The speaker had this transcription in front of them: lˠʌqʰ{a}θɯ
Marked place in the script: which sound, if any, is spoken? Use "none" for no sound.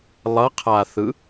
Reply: a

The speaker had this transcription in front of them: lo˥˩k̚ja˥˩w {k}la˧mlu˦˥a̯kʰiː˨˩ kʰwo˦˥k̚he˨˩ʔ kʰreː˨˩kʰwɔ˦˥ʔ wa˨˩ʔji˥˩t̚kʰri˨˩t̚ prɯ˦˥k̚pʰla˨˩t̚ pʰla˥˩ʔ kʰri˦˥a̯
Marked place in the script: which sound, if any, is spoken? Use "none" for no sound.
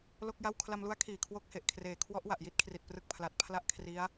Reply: kʰ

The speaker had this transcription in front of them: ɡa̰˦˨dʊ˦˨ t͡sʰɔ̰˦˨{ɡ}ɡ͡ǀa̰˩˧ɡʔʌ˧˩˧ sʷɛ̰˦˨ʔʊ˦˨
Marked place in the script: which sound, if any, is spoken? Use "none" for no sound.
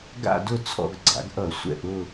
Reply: ɡ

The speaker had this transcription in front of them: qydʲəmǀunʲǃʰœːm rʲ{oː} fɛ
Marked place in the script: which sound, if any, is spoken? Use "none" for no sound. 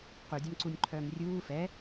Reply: uː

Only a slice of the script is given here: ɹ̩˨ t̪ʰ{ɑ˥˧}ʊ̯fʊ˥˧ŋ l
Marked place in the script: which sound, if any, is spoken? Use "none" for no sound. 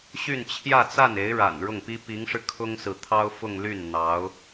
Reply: ɑ˥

